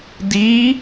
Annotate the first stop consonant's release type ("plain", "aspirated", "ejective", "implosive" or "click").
plain